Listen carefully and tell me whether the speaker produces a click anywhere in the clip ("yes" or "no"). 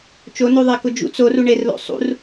no